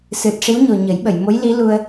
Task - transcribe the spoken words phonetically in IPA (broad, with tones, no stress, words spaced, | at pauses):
sɨ˨˩t̚ ʂi˧˥wɲo˨˩ ɲə˨˩˦jɓə˨˩˨jmo˧˥j li˧˥lu˧ə̯